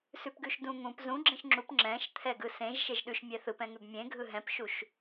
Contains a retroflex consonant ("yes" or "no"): no